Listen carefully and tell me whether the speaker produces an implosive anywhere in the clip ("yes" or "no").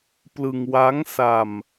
no